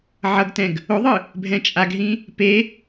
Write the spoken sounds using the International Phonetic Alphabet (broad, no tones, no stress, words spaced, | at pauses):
ʕʌɡtɛ̃ɡ | oðˤɯ | bʱɛ̃t͡ʃʼaɡɦĩ | pe